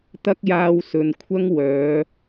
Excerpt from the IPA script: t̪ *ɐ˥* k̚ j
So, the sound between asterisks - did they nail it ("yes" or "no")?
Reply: yes